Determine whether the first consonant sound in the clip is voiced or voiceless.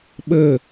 voiced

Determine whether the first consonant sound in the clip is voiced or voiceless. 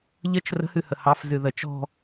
voiced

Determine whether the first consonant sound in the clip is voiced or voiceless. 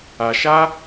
voiceless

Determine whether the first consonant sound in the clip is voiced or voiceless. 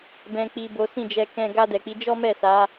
voiced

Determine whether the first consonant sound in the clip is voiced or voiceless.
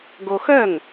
voiced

